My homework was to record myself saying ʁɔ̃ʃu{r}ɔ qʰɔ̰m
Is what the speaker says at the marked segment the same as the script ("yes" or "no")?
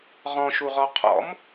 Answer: no